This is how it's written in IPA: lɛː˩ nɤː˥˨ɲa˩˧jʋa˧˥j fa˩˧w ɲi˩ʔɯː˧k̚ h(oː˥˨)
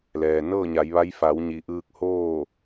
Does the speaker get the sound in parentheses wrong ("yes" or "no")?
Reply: no